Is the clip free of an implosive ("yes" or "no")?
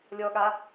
no